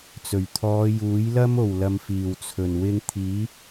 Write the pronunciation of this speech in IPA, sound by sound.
t͡s ɵ˨˩ ɥ t̪ʰ ɔː˨˧ j uː˨˥ j l ɐ˥ m o˨˩ w l ɐ˨ m f iː˨˩ w t͡sʰ ɵ˨˩ n w ɪ˧ ŋ t̪ʰ iː˨˥

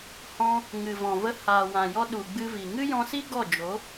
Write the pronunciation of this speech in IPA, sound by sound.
h ɔ̃˧ | ŋ ɨ˨ v ɔ̃˨ v ə˧ h aː˨ w ã˨ j ɔ˧ ɗ u˨ ɡ͡b ɨ˧ v i˨ ŋ ɨ˦ j ɔ̃˧ s i˦ ɡ ɔ˦˨ d͡ʒ o˨˦

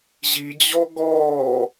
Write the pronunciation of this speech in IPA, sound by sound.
ʑ i d͡ʑ ɔ ɡ ɔː

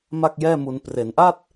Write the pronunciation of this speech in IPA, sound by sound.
m a˥˩ k̚ j ɛː˥˩ m u˧ n p r e˩˦ n ʔ a˥˩ t̚

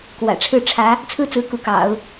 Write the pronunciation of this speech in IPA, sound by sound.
k w ä̰˨˩ ʈ͡ʂʰ ɻ̩˥˩ ʈ͡ʂʰ ä˧˥ | t͡sʰ ɹ̩˥ t͡s ɹ̩˧˥ k u˧˥ k ɑ̰˨˩˦ ʊ̯

